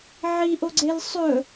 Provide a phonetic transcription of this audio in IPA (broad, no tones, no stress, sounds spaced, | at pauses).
ʕ i ʔ o ɡ͡ǀ e l sˤ ɵ